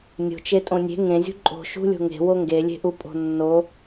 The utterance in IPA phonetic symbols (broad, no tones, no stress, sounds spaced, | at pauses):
nʲ o̤ t͡ʃ e tʼ õ nʲ e̤ ŋ ẽ zʲ ṳ ǃʼ o̤ ʃ ṳ lʲ o̤ ŋ e̤ w o ŋ ɡ e lʲ e̤ ʔ u pʼ o̤ nː o